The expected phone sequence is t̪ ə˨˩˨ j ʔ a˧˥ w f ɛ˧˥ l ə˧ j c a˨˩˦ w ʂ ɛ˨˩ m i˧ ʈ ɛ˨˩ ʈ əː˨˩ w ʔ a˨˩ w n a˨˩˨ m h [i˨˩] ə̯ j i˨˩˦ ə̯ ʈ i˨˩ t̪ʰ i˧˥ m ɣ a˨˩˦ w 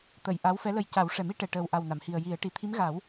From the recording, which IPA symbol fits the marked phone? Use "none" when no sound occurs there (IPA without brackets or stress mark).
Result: i˨˩